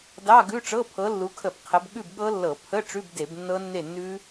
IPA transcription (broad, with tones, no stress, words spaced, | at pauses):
dɑ˧˥˧ɡʉ˧˥˧ʈ͡ʂɤ˧˥˧ pʰɤ˨˦lːu˨˦kʰə˧˩˧b qʰə˨˦bɠʉ˥˨bɠɤ˦˥lːɤ˧˩˧ pʰə˧˥˧ ʈ͡ʂʉ˧˥˧bde˧˩˧b nːɤ˦˥nːe˥˨nːʉ˦˥